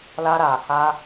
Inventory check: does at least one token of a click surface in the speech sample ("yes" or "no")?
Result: no